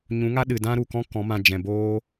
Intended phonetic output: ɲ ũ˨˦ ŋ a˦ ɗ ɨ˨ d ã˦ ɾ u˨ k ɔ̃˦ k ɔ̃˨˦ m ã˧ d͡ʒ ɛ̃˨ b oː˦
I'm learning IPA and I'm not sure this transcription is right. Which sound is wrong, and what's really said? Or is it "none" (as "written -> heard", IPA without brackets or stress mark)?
none